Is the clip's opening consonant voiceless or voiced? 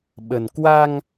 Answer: voiced